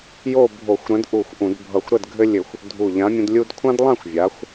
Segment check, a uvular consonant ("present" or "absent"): absent